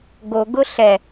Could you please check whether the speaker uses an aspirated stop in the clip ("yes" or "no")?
no